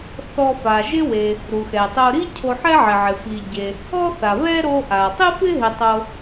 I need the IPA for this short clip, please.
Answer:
θ ɔ˧ f a˩ ʒ ɪ˥ w e˩ | ɾ u˩ x ɛ˩ tˤ o˧ ɾ i˥ cʰ o˧ ħ ɛ˥ ʕ ɪ˩ ʕ ɪ˩ f i˩ ɟ e˩ | ɔ˥ θ a˩ β ɛ˥ ɾ o˧ ʔ a˩ tˤ ɪ˥ f ɪ˥ ɦ ɪ˧ tˤ o˧

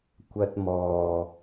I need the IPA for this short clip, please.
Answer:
kʷ ɐ˧ t̚ m ɔː˨

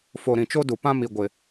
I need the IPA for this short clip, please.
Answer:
f o˨ ɾ ĩ˨ t͡ʃ o˦ d u˨ p ã˦ m i˨ ɡʷ ɪ˨

